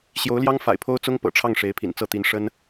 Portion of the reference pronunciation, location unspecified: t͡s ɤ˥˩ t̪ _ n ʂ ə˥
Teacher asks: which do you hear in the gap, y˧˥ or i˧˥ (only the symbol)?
i˧˥